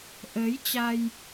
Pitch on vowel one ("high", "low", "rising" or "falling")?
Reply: rising